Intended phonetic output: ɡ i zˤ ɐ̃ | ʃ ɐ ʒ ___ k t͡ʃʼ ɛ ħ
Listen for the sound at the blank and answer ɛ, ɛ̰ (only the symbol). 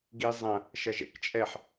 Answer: ɛ̰